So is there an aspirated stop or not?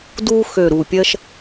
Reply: no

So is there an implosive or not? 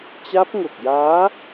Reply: no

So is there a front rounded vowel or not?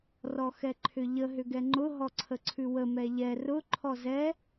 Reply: yes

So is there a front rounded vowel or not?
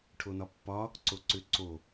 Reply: yes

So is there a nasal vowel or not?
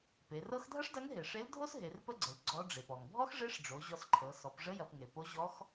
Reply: no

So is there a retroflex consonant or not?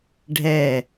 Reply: yes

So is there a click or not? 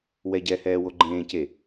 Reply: yes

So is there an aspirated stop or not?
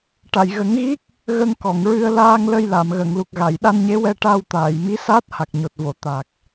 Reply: no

